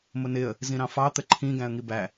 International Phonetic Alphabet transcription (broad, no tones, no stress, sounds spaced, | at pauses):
m ʊ n ɪ ə̯ | z ĩ ɾ ɑ̃ f ɑ t̪ ə ǃʰ ĩ ɡ æ̃ ə̯ ŋ i b æ